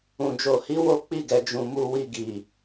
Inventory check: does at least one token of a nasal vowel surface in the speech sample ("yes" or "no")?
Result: yes